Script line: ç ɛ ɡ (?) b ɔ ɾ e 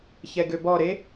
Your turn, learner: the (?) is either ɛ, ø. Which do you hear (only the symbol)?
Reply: ø